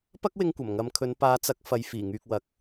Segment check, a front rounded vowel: present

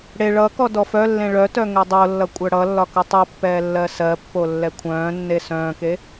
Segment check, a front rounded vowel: present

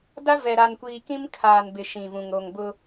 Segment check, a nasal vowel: present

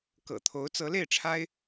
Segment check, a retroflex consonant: present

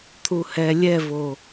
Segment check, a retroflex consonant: absent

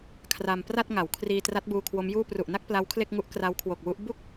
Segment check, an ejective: absent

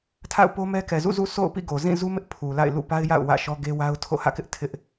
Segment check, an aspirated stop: present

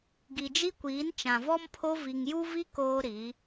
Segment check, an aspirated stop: present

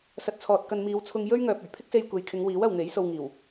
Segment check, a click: absent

